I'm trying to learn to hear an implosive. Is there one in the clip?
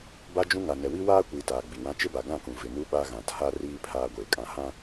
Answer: yes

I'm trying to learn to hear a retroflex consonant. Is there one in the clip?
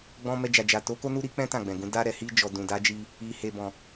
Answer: no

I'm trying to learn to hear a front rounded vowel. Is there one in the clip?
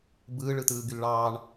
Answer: yes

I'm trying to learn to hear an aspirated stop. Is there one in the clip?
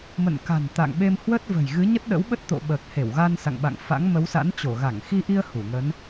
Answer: no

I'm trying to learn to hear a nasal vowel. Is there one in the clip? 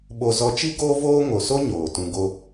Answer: yes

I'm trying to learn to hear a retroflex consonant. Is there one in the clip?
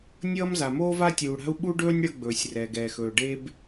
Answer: yes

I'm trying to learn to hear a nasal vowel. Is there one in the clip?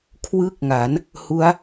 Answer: no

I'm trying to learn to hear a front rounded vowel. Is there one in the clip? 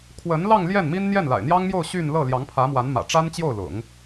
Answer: yes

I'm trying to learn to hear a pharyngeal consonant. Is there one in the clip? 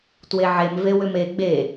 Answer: yes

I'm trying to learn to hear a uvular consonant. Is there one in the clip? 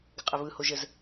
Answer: yes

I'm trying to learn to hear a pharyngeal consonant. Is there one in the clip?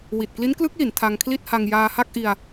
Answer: no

